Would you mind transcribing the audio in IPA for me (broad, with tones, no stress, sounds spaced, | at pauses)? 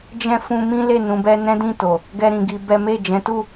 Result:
d͡ʒ ɛ̃˦ f ũ˦ m ĩ˦ l e˦˨ n ũ˧ b ɛ˦ n ɛ̃˦ d ĩ˦˨ t o˨ | ɡ ɛ˦ ɾ ĩ˧ ɡ i˧ b ɛ˦ m e˦˨ d͡ʒ ɛ̃˨˦ t u˦˨